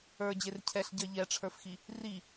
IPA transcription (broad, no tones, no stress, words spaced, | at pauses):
ə˞ d͡ʑercʰɛɬ ɟɜʎɛʈ͡ʂʰə˞fxi | ri